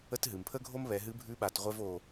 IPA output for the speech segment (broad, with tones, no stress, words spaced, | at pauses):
ə˥t ɦɨ˩m pʰə˥ɡʱo˥m βɛ˩˧ɦɨ˧˥bʱʉ˧˥ ɓa˩˧tʁʷɛ˥v o˧